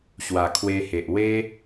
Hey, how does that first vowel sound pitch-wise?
low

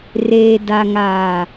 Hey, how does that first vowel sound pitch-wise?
low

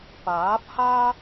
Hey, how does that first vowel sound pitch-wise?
rising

